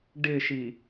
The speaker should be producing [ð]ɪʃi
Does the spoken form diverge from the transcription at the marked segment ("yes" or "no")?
yes